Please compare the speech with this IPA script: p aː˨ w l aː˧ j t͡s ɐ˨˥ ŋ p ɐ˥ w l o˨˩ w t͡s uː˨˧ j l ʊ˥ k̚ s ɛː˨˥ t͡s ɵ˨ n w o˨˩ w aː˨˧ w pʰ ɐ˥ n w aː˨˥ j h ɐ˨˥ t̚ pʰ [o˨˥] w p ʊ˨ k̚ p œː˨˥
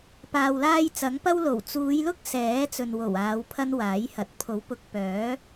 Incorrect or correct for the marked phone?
correct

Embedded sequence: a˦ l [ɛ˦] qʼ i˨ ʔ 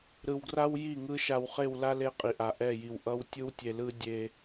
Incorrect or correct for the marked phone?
incorrect: e˦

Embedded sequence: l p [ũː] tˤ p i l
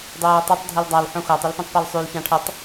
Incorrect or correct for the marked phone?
incorrect: ũ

